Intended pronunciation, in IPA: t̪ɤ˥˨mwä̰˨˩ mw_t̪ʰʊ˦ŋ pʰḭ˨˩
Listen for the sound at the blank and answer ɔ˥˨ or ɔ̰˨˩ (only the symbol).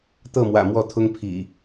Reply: ɔ˥˨